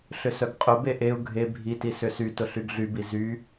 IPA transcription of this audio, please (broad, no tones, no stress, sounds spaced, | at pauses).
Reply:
ɬ ʏ s œ ɡ qʼ ʊ b e ʔ e u̯ ɡʱ e bʱ i t i s ʏ s y t ʊ ɬ y ɡ ɮ y b i z y